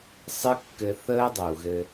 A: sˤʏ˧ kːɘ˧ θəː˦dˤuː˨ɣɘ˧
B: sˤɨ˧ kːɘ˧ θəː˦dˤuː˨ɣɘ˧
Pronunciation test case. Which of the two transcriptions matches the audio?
B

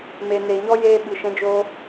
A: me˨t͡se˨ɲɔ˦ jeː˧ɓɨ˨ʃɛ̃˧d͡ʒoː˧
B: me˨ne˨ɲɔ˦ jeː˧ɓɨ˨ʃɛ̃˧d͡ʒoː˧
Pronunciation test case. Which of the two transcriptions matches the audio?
B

